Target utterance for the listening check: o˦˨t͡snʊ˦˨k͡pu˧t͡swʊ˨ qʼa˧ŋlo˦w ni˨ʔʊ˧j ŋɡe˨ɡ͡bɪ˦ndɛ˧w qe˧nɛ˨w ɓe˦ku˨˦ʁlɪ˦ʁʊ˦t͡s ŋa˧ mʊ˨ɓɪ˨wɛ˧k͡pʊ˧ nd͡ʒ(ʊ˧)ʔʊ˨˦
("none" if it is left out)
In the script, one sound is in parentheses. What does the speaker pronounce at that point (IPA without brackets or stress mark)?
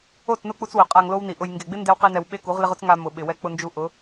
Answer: u˧